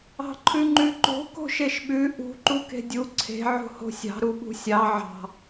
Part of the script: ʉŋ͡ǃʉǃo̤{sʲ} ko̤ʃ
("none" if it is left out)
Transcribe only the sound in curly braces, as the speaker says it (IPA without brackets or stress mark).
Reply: none